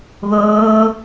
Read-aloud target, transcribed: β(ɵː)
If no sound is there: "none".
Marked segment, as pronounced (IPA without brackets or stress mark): oː